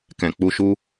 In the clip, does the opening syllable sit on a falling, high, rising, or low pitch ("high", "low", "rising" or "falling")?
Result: low